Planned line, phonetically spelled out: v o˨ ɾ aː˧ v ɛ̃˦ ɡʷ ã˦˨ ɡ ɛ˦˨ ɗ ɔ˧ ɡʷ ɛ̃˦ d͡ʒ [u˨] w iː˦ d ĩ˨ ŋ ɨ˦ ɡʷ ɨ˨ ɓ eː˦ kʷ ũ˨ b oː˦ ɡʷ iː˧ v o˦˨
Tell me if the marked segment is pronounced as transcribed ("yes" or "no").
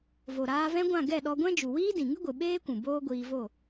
yes